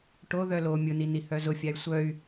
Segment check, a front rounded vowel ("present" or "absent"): present